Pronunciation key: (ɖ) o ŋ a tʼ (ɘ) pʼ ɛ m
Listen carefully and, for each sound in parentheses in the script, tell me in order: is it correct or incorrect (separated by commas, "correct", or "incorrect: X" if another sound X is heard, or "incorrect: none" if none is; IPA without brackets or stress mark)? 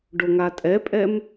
correct, incorrect: ɛ